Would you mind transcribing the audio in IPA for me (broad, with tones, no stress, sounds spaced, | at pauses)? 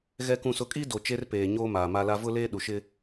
ɣ ɛ˨ k ũ˨ s ʊ˨ kʼ i˦ d o˨ t͡ʃ e˦ r p eː˨ ɲ oː˦ m aː˨ m a˦ l a˦ v ʊ˦ l eː˦ ɗ u˨ ʃ ɪ˦